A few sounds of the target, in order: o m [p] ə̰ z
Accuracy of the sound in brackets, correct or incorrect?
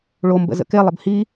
incorrect